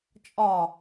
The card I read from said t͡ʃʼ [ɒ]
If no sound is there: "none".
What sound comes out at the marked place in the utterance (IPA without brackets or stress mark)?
ɒ